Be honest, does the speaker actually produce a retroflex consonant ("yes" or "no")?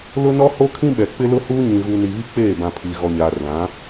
no